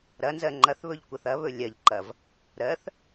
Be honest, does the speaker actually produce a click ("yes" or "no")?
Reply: yes